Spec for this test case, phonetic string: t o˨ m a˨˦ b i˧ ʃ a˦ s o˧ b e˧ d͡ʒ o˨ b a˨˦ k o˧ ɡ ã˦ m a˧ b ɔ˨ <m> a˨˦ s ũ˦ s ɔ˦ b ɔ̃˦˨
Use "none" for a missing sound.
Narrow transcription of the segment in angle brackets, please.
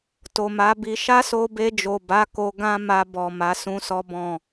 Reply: m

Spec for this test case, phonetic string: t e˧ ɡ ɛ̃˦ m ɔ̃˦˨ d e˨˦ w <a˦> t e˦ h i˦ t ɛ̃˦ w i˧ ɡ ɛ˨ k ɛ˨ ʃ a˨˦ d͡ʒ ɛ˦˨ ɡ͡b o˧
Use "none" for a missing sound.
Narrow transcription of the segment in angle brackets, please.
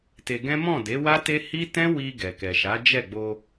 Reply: a˦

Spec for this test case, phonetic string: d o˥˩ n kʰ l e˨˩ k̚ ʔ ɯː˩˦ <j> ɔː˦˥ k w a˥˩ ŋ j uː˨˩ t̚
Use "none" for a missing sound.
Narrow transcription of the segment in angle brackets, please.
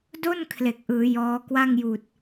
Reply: j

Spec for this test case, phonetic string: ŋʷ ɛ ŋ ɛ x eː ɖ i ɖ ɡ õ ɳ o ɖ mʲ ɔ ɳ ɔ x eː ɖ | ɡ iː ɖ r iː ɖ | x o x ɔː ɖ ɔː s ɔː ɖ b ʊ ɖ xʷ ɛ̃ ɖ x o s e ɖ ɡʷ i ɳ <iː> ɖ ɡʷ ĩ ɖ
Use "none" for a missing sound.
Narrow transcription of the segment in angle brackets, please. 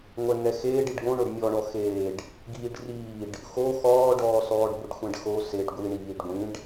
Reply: iː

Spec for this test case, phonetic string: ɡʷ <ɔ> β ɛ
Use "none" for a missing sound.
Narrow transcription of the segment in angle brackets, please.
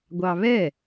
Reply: ɑ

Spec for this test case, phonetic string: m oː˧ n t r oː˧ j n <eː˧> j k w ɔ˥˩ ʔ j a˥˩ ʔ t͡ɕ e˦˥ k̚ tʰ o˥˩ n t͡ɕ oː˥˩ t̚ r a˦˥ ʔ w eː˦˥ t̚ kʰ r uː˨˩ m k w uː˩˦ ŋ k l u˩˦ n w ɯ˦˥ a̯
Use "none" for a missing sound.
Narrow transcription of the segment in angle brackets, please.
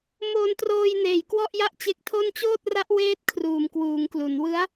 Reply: eː˨˩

